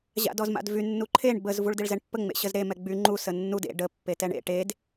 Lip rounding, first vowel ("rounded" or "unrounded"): unrounded